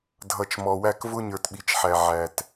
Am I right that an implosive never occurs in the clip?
no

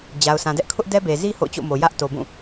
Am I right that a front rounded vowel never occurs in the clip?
yes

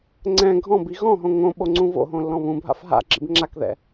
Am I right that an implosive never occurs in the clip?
no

